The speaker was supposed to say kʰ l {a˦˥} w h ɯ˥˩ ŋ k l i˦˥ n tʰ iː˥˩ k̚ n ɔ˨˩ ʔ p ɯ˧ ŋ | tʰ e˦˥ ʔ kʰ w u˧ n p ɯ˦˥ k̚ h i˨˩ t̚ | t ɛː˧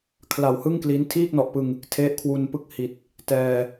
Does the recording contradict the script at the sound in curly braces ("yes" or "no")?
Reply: yes